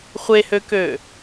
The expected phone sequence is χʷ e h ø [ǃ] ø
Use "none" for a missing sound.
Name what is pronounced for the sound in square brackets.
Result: k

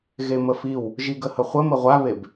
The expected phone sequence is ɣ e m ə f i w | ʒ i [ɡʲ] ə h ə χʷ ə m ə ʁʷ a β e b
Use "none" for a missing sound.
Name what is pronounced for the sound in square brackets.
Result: ɡ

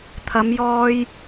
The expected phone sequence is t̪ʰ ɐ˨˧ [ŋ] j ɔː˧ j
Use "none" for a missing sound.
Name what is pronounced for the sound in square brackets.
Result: m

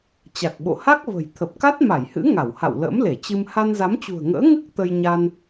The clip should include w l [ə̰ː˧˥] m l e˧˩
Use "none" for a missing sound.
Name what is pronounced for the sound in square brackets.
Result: ə̰ː˧˥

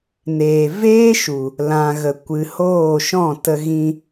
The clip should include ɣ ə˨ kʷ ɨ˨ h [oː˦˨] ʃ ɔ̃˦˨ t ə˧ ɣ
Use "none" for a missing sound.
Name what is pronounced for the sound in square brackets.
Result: oː˦˨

